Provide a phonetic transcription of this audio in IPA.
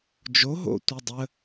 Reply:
d͡ʒ o ɦ o̰ tʷ i dˤ ə

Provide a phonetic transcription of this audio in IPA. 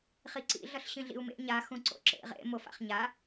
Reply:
χ i ǀ ḭ ɮ ʌ ɬ ɕ ĩ ɮ ḭ u̯ m ḛ ɲ a x ũ ǀ o̰ ǁ ḛ ʁ ḛ m o f a̰ χ ɲ a

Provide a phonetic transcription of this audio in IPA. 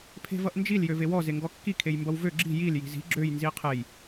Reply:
pʰ e̤ v ʌ ʔ n d͡ʒ i l j ø v e w ɔ z e ŋ ɡ ɔ kː i kʰ e j m b ʌ w v ø ɡ͡ǁ i̤ j i l j i̤ z i̤ ɡ͡ǁ ø j n z i qʰ e j

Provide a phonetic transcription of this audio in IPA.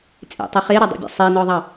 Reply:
t͡sʼ ḛ tˤ i χ e ɾ ɔ dˤ ḭ bʲ ɔ̰ sˤ i n ɔ ðˤ ɑ

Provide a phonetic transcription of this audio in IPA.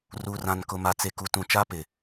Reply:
r uː˨ r ã˨ n k ʊ˨ m a˨ t͡s e˨ k u˨ t ũ˨ t͡ʃ a˦ p ɪ˨

